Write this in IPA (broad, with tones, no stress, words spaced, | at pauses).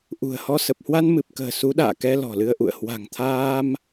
ʔṳ˨˩ə̯hɔ˧ sə˨˩p̚hwa˧n mɨ˨˩p̚kə̤ː˨˩ su˨˦ɗa̰ː˧˨kɛ˧ lɔ̤˨˩lɨ˧ə̯ʔṵ˧˨ə̯ hwa̤˨˩ŋt̪ʰaː˧m